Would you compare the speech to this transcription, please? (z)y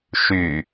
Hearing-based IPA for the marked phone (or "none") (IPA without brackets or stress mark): ʃ